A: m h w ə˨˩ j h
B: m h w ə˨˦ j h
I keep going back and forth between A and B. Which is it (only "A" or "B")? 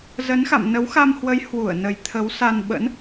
B